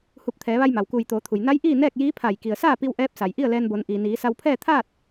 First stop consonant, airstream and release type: plain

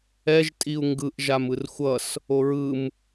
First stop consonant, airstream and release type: ejective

